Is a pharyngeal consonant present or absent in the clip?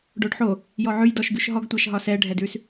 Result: present